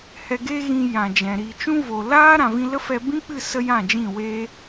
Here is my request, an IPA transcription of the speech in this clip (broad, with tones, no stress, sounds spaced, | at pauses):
h ɛ˧ ɡ e˦ ɣ ĩ˧ j ã˨ d͡ʒ ɛ̃˨ ɾ i˨ t͡ʃ ũ˦ v o˨ l aː˦ ɾ ã˧ v ĩ˦ l ə˦ f ɛ˧ b ĩ˦ k͡p ɨ˦˨ s ə˦ j ã˦˨ d͡ʒ ĩ˦˨ w eː˦